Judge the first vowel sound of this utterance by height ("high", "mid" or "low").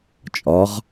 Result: low